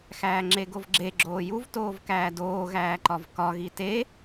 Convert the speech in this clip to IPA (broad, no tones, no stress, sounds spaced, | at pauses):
x æː ŋ͡ǁ e ɡ o v ɡ͡ǁ e ɡ͡ǁ oː j u v t oː v k æː d oː ɣ æː ǃ ɒ v k ɒ ɣ i t e